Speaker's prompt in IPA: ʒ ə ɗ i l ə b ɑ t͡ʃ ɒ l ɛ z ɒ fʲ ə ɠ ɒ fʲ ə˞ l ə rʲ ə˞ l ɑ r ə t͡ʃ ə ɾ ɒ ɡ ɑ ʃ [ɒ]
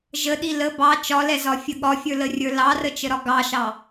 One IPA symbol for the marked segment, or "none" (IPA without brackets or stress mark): ɑ